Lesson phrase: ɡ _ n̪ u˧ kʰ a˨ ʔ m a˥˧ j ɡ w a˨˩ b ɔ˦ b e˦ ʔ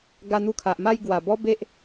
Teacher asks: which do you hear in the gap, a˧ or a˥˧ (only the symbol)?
a˧